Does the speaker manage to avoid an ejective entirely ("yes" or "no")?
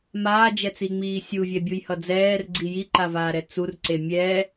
yes